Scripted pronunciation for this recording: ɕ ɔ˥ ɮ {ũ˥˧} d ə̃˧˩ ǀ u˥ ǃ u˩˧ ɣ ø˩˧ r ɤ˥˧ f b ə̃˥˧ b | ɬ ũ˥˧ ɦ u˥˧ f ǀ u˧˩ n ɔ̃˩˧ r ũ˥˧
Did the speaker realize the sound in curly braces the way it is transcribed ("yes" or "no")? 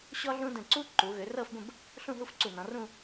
no